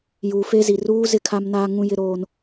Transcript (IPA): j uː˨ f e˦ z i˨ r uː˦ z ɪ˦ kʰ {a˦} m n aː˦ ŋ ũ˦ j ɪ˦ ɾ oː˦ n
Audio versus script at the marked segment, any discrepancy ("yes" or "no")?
no